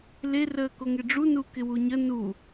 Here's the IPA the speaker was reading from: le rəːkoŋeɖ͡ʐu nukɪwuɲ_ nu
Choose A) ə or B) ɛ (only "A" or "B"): A